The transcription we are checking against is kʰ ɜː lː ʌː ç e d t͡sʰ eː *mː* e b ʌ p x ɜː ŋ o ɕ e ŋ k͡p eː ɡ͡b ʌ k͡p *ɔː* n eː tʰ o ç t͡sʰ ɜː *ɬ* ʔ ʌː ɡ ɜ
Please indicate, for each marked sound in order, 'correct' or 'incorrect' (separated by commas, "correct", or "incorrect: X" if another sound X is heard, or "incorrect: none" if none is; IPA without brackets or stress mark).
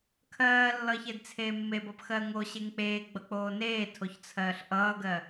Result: correct, incorrect: oː, correct